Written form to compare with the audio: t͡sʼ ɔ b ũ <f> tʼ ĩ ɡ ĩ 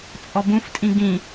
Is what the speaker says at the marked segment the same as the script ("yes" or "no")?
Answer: yes